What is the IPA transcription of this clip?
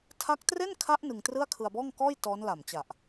tʰ a˦˥ k̚ t r e˥˩ n kʰ a˦˥ ʔ n ɯ˧ ŋ t r ɯ˥˩ a̯ kʰ ɯ˧ a̯ b ɔː˥˩ ŋ k ɔː˥˩ j t ɔː˦˥ n l a˨˩ m t͡ɕ a˨˩ ʔ

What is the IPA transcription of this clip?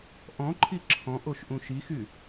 ʔ ɔ̃ ǃʰ i ǁʰ ɔ̃ ʔ o ʃ ʔ ũ ʃ i x y

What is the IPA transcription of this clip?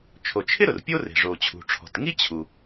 t͡ʃʰ o˩ t͡ʃʰ ɪ˥ ɾ ʊ˩ r pʲ o˥ r e̤˩ ʐ o˩ t͡ɕʰ ṳ˩ ʈ͡ʂʰ ɔ̤˩ t ŋ i˥ t͡ɕʰ u˩

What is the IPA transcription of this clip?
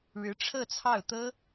ɻ ɻ̩˧˥ ʈ͡ʂʰ ɤ˥˧ t͡sʰ ɑ˥˩ ʊ̯ t̪ ɤ˥

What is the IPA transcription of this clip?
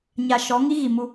ɲ a˨ ʃ ɔ˨˦ ŋ i˦ ɣ i˨ m u˦

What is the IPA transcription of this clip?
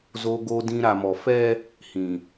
z o˨ ɡ o˨ d ĩ˨ ɾ a˨ m ɔ˨ f ɛ˦ | h ĩ˨

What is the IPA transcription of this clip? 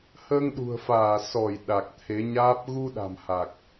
h əː˧ ŋ ɗ ṳ˨˩ ə̯ f aː˧˩ s ɔ˧˩ j ɗ a˨˩ k̚ t̪ʰ e˨˦ ɲ aː˦˥ p̚ ɣ u˧ ɗ a̤˨˩ m h a˨˩ k̚

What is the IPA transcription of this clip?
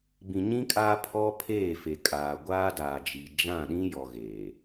b ĩ˨ ɲ ĩ˦ kʼ aː˦ pʰ ɔ˦ pʰ eː˦˨ f e˨ kʼ aː˨ ɡʷ aː˦ d aː˨ d͡ʒ i˨ d͡ʒ ã˦˨ ɗ ĩ˦ j ɔ˨ ɣ eː˨

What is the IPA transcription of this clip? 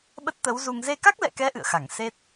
ɓ ə˦˥ t̚ t̪ ə˨˦ w z u˧ ŋ z e˧ k a˦˥ k̚ l ɛ̰˧˨ k ɛ˨˦ ʔ ɨ̰˧˨ ə̯ x a˧˩ ŋ s e˦˥ t̚

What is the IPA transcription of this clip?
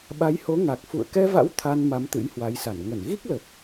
ɓ a˨˦ j h o˨˦ ŋ a˨˩ k̚ f ṵ˧˨ ə̯ k ɛ˧ v a̰˧˥ w t̪ʰ a˧ n m a˨˦ m t̪ ɨ̰˧˥ j h w a˨˦ j s a˧˩ n ŋ ə˧˩ n ɣ i˦˥ k̚ l ə˨˩ p̚

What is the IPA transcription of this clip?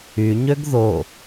y ɲ ø ɡ ð o

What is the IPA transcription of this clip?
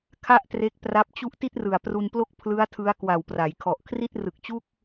kʰ a˥˩ ʔ t r e˦˥ k̚ p r a˦˥ p̚ t͡ɕ u˥˩ ʔ t i˥˩ t̚ r ɯ˨˩ a̯ p r u˧ n p l o˥˩ k̚ pʰ l ɯ˦˥ a̯ tʰ ɯ˦˥ a̯ k w a˨˩ w p r a˩˦ j kʰ ɔ˨˩ ʔ kʰ r i˥˩ t̚ r ɯ˨˩ k̚ t͡ɕ u˥˩ k̚

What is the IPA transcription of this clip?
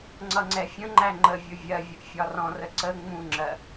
ŋ͡ǀ ʌ ŋ͡ǀ ɛ fʲ ə̃ ŋ͡ǃ æ ŋ͡ǃ ə vʲ ʊ vʲ ɜ vʲ ə ʔ fʲ ɒ r ɔ̃ r ə ǀ ə ŋ͡m ũ ŋ͡ǁ ɜ

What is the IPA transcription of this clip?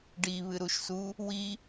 ɖ i β ɨ ɾ u ʃ s u | w i

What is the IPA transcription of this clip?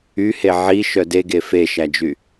y h e ʕ i ʃ œ d e ɡ e f e ʃ æ d͡ʒ y

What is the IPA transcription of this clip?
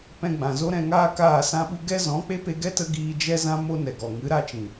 p ɛ̃˧ ɡ͡b ã˨ z o˦ ɾ ɛ̃˧ ŋ aː˦ k aː˦˨ s ã˦ ɓ u˦ ɡ ɛ˦ z ɔ̃˨˦ k͡p e˦ p e˧ ɡ ɛ˦ t ə˧ ɡ iː˧ d͡ʒ ɛ˦ z ã˦ m o˦ n ɛ˨ ɡ ɔ˨ ŋ ɨ˨˦ ɾ a˦ t͡ʃ ĩ˨

